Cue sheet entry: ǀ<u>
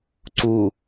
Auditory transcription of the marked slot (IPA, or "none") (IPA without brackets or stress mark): u